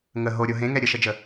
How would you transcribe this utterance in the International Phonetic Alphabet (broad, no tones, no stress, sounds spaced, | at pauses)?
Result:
ŋ ə ɦ o ɾʲ o ɦ ẽ ŋ ɛ ɾʲ ə ʃ ə d͡ʒ ə